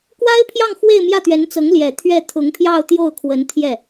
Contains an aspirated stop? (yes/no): yes